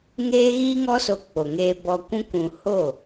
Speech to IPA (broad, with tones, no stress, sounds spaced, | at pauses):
ŋ eː˦ ɣ iː˦ ŋ ɔ˦ s o˧ k͡p o˨ ŋ eː˧ b ɔ˧ kʷ ũ˦ k ũ˧ h o˦˨